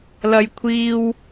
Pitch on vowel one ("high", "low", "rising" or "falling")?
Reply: high